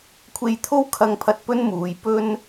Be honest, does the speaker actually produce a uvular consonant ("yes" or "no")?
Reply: no